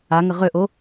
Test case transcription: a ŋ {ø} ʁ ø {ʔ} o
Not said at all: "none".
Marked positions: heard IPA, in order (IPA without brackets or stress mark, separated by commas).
ə, ʔ